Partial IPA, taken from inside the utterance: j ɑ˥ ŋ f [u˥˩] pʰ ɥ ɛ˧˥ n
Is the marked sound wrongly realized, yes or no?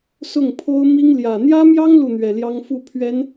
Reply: no